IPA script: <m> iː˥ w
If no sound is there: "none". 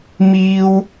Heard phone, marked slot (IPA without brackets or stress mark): m